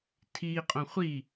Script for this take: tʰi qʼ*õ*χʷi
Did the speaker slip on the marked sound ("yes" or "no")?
no